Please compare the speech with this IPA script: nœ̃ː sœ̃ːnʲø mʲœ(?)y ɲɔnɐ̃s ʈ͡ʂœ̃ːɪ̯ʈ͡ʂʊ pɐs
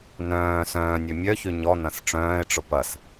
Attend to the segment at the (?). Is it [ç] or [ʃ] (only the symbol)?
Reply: ç